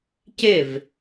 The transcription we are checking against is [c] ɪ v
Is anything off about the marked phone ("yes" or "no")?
no